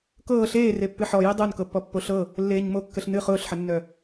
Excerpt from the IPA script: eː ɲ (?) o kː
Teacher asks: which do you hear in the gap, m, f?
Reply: m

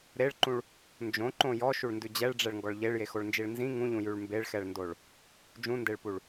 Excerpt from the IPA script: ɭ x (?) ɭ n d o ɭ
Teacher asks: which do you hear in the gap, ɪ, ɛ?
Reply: ɛ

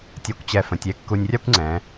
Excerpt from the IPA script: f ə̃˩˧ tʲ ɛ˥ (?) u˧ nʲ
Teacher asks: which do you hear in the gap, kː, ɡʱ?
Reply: kː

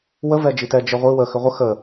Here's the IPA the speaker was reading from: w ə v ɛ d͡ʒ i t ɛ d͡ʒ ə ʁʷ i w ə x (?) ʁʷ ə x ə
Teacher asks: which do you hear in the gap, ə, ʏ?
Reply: ʏ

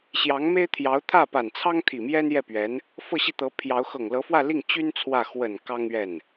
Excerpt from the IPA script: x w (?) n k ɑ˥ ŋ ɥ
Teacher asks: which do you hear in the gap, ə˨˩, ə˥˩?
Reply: ə˨˩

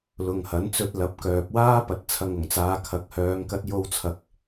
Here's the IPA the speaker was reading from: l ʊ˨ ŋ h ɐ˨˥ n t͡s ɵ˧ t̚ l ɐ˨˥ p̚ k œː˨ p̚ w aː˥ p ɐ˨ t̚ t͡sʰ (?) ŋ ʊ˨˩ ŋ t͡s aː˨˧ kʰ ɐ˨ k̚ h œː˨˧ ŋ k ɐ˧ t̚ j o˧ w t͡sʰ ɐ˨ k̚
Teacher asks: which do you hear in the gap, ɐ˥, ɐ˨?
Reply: ɐ˨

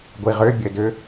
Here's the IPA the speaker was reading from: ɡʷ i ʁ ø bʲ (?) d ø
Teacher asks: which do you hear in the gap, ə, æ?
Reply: ə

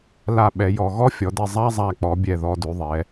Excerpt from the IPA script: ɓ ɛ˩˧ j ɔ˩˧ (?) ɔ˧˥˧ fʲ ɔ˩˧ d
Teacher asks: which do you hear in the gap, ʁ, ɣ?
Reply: ɣ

